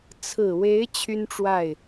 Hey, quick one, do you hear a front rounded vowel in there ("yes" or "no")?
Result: yes